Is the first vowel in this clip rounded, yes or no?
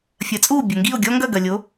no